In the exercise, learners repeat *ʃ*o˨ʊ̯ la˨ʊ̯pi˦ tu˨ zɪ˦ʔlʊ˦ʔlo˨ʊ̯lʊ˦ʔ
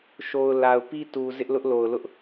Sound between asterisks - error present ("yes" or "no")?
no